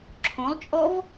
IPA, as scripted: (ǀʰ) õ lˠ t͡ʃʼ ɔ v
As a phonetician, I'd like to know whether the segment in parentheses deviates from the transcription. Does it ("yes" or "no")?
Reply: yes